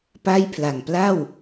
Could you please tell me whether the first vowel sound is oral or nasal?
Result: oral